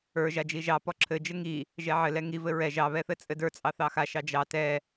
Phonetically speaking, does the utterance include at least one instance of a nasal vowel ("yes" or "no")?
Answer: no